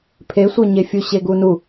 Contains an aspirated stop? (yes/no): yes